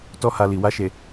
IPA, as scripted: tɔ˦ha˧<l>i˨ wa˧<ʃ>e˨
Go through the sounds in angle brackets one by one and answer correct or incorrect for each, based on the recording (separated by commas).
correct, correct